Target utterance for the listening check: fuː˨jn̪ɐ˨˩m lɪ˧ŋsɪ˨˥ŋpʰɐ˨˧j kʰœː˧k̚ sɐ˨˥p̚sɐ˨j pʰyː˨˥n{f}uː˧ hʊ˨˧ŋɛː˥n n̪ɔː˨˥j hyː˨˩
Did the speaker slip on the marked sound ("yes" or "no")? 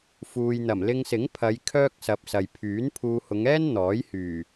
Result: yes